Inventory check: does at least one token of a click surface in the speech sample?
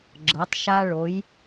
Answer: yes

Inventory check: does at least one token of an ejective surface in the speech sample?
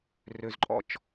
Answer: yes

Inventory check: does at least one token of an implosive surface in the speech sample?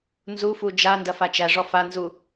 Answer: no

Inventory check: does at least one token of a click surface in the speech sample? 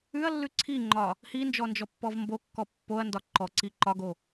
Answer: yes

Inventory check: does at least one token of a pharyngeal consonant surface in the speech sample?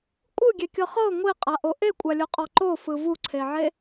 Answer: yes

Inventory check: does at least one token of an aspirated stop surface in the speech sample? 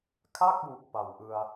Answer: yes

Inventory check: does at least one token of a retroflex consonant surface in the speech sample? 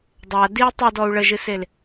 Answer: yes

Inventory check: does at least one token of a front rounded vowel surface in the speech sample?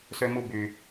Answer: yes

